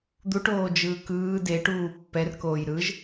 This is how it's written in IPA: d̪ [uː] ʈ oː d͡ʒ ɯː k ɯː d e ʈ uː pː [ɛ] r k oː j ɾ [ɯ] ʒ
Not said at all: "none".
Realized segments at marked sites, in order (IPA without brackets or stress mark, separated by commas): u, ɛ, ɯ